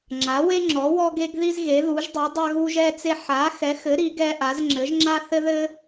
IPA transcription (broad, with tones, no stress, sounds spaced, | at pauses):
ŋ͡ǁ a˨˥ w e˥ ŋ͡ǁ ɔ˨˥ w ɔ˥ ɡ e˥ ɡ ð i˥ z ɣ e˨˥ ð u˨˥ ʒ dˤ i˨˥ dˤ a˥ ɣ u˥ ʒ ɛ˥ t͡s e˥ ħ a˨˥ x ɛ˨˥ x ɘ˨˥ ɾ i˨˥ ɡ ɛ˥ ʔ a˨˥ z ŋ͡ǁ ɘ˨˥ ʒ ŋ͡ǁ a˥ θ ɘ˥ ð ɘ˥